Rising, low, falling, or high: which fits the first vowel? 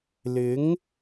rising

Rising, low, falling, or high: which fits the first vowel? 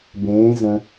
rising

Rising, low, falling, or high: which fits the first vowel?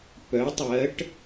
rising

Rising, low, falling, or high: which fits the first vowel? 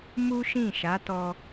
high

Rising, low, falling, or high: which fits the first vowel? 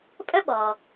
high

